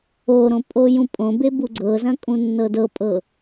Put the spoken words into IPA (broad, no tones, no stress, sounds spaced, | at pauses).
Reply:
o ɾ õ pʼ o j ũ pʼ õ b e b u ɡ͡ǀ ɤ z ɐ̃ kʼ ũ nː ɤ d ɤ pʼ ɤ